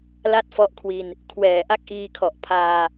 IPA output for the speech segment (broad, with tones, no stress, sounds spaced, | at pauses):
l a˥˩ t̚ f ɔ˦˥ ʔ kʰ w i˧ n | kʰ w ɛː˨˩ ʔ a˥˩ k̚ ʔ iː˧ kʰ ɔ˨˩ ʔ pʰ aː˧